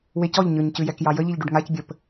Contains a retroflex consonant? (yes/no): yes